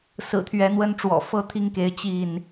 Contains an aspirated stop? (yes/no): yes